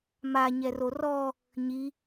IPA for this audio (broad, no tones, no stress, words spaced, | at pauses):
ma ɲɛrorɔ | ɲi